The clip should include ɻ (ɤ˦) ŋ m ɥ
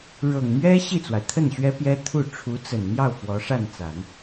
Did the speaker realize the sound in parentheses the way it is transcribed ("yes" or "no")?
no